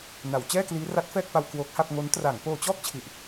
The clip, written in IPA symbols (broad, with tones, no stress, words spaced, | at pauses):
na˩˦w t͡ɕɛː˥˩kliː˦˥ ra˦˥t̚fɛː˥˩k̚pa˧w kwoː˦˥k̚ha˥˩p̚ ŋo˦˥n tra˩˦ŋ poː˧t͡ɕɔː˥˩k̚t͡ɕʰi˨˩ʔ